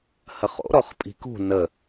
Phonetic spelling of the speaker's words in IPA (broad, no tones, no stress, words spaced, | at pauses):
həχo̰ ɾɔχpʼi̤kṳ nə